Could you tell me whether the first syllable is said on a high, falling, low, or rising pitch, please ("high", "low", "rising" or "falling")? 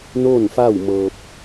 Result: falling